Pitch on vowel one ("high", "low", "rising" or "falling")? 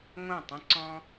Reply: falling